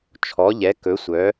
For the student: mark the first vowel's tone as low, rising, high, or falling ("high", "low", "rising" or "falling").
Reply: rising